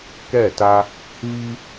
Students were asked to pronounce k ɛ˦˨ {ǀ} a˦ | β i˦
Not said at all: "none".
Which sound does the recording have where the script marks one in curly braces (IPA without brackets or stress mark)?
t